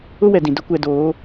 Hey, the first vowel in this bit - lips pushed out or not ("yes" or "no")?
yes